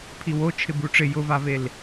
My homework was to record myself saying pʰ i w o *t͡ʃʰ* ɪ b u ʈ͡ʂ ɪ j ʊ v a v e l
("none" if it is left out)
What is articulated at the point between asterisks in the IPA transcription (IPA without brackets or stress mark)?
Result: t͡ʃʰ